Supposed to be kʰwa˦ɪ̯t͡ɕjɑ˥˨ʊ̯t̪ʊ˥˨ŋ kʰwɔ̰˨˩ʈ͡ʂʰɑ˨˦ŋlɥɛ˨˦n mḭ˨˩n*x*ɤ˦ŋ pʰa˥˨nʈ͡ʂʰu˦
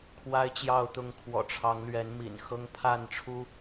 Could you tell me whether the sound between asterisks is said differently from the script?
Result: no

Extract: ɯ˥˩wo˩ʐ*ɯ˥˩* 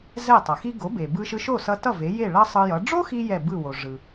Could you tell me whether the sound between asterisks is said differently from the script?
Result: yes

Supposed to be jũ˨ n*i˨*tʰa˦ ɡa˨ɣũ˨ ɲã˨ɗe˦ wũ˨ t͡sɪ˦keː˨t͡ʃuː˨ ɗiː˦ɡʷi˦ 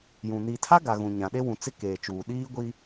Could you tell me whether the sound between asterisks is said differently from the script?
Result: no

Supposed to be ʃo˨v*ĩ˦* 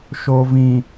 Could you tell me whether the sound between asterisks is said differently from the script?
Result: yes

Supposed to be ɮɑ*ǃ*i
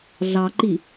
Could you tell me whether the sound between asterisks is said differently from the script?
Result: no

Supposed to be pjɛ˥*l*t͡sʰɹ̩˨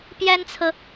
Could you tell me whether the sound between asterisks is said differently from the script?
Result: yes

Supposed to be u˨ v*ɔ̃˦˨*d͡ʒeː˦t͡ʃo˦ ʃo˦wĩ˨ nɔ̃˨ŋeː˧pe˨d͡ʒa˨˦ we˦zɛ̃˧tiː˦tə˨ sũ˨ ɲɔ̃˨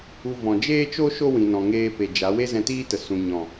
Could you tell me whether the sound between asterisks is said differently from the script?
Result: yes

